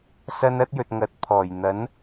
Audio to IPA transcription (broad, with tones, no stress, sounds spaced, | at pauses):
s ɐ˧ n ɐ˥ t̚ j ɵ˨ t̚ ŋ ɐ˨˥ t̚ pʰ ɔː˨˩ j n̪ ɐ˨˥ n